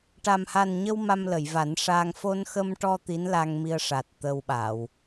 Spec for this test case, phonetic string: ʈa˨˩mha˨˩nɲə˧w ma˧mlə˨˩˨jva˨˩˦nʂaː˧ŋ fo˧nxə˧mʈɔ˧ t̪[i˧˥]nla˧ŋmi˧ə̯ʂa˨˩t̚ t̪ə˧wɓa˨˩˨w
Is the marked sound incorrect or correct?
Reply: correct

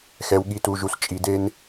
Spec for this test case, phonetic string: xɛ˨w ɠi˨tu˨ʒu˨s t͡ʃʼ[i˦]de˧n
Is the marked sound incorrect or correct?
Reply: incorrect: i˨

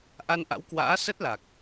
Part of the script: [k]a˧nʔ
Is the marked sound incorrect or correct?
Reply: incorrect: ʔ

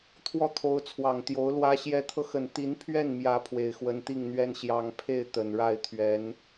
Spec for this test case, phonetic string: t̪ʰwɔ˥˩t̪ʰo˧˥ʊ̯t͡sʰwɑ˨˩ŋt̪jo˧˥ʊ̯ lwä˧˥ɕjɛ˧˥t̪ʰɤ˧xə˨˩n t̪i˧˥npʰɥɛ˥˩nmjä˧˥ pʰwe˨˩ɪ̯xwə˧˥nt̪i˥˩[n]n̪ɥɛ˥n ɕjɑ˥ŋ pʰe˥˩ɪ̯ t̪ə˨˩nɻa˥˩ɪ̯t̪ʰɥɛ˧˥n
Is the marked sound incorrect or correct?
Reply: incorrect: ŋ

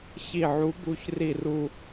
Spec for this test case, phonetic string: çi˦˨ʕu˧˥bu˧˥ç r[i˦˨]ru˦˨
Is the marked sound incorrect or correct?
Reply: correct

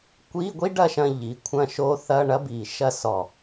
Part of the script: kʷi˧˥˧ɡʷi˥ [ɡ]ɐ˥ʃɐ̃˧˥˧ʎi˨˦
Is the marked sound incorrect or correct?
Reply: incorrect: ɖ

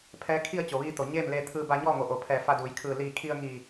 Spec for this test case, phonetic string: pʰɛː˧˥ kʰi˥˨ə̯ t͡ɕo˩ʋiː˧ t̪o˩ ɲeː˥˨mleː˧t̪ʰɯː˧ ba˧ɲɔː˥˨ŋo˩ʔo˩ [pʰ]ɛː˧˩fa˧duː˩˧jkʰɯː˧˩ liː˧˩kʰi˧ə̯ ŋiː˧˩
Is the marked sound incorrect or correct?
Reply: correct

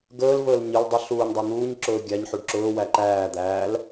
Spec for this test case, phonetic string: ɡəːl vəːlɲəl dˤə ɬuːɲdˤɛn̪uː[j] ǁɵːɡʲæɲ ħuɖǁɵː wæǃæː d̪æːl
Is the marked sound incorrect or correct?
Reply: incorrect: ɲ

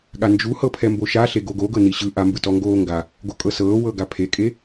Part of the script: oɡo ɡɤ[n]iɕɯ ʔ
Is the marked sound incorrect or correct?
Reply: correct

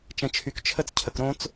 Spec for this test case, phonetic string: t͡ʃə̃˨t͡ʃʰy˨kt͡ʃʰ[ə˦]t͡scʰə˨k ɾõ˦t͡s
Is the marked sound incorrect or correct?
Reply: correct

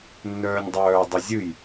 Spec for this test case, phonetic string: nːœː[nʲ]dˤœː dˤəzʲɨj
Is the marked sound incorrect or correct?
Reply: correct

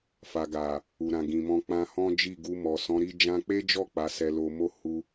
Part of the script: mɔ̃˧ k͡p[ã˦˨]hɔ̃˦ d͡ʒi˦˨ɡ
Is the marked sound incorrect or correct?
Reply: incorrect: ã˧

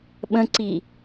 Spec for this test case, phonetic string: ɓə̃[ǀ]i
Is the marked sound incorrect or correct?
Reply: correct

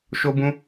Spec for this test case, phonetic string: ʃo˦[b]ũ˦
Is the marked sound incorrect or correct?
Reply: correct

